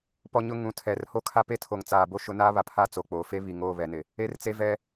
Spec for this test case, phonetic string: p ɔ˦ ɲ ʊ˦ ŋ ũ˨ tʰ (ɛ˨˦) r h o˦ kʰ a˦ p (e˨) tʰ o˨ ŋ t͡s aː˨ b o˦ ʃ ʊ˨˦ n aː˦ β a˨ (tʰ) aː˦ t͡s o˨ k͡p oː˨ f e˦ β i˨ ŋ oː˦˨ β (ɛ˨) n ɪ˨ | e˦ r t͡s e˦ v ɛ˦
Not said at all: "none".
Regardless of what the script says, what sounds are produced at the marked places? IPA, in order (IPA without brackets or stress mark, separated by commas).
ɛ˨, e˦, pʰ, ɛ˨